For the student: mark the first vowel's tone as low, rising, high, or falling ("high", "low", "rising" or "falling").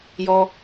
high